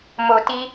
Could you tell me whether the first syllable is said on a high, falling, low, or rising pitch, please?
low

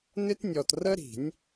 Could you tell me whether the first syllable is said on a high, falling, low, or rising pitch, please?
high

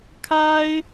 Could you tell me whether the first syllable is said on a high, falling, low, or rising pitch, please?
high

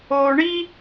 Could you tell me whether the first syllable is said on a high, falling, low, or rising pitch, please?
low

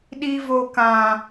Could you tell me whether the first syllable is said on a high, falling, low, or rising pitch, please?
high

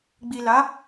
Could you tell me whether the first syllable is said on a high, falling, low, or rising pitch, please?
low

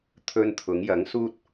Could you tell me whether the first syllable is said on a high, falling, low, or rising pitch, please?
high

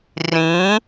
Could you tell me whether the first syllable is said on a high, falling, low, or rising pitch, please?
rising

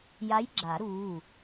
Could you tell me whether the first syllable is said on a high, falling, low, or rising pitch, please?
rising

